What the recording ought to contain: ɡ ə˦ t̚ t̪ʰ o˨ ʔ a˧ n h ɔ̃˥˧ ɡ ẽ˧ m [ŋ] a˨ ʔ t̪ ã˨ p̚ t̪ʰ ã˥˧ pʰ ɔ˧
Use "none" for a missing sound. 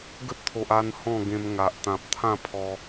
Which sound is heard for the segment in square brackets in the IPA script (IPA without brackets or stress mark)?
ŋ